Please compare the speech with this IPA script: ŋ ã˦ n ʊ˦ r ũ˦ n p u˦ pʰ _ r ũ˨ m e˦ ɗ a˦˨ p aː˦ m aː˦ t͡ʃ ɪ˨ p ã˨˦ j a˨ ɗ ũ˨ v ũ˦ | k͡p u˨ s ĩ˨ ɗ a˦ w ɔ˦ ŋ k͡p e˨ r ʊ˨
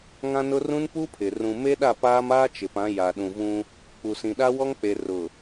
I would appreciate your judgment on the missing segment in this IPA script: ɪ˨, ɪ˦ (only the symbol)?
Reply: ɪ˨